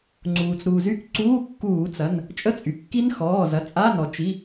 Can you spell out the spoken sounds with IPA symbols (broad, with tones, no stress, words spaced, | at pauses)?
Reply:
ŋ͡ǀuː˩t͡sɾuː˩zy˦˥k ǀuː˧˥˧kːuː˧˩˧t͡sɐ˩˧˩n | t͡ʃʼə˦˥t͡sʼy˩ kːi˦˥nxɔː˩˧˩zɐ˩˧˩ t͡sʼa˧˥˧nɔ˩ t͡ʃi˩˧˩